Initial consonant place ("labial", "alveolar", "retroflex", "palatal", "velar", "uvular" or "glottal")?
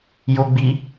palatal